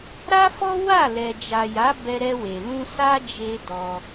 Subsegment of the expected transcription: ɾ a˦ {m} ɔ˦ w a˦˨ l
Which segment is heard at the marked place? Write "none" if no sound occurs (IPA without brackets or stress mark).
f